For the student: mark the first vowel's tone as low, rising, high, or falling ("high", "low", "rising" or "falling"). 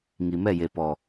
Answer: low